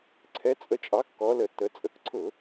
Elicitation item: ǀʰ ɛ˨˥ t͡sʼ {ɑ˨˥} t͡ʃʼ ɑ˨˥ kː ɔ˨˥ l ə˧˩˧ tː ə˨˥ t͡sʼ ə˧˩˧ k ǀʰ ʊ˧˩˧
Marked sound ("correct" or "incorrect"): incorrect